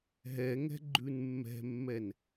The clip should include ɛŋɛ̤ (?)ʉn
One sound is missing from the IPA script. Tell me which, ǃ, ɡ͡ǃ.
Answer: ɡ͡ǃ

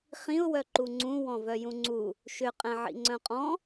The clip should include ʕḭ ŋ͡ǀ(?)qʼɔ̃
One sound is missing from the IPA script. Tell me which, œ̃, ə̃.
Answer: œ̃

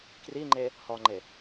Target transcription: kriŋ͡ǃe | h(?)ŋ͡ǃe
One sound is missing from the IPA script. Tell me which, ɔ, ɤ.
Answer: ɔ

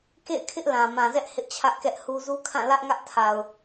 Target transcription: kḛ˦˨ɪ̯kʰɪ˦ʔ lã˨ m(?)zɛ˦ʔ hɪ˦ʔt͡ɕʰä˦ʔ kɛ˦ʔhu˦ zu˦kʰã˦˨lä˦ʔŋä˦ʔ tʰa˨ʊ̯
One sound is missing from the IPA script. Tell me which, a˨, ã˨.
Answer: ã˨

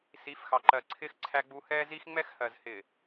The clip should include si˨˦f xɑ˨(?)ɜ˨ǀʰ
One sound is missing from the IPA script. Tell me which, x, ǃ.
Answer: ǃ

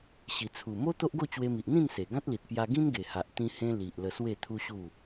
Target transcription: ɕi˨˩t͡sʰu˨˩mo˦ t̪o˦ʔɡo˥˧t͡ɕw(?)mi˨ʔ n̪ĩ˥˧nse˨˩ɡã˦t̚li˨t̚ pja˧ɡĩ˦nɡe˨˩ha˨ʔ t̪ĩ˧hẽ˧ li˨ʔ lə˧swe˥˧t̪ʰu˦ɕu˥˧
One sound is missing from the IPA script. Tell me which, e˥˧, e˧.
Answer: e˧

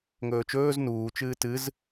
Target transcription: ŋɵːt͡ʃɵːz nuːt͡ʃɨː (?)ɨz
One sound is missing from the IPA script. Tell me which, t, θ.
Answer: t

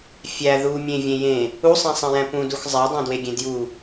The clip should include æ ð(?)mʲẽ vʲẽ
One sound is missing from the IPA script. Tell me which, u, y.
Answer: u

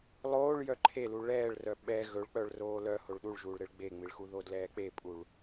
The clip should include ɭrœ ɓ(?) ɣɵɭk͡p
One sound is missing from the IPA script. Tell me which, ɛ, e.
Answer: ɛ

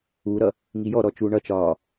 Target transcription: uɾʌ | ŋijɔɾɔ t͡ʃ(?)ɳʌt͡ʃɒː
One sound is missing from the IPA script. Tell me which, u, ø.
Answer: u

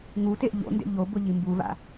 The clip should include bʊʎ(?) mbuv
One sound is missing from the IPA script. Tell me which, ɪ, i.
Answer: i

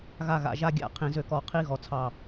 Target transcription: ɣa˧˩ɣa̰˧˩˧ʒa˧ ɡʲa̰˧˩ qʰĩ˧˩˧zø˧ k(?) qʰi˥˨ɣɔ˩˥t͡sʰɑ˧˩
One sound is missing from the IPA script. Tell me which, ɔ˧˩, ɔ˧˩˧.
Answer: ɔ˧˩˧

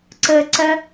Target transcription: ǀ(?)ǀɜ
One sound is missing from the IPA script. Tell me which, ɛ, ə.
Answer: ə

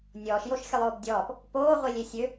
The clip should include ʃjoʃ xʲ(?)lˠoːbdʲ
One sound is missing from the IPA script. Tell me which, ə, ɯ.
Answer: ə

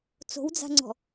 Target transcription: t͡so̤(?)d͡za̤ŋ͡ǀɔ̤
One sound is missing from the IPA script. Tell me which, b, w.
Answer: w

